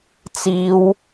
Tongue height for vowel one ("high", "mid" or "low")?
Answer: high